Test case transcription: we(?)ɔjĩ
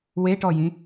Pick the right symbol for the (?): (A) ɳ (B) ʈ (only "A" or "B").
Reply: B